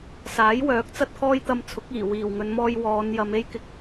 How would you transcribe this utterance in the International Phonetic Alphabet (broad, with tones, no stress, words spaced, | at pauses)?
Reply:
saː˨˥jwœː˨˥k̚ t͡sɐ˥t̚kʰɔː˥jt̪ɐ˧mt͡sʰʊ˨˥k̚ iː˨˩ wiː˨˩wŋɵ˨˧nmɔː˧j wɔː˨˧njɐ˨˧me˥j kɪ˨k̚